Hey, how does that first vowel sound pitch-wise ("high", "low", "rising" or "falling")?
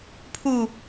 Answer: falling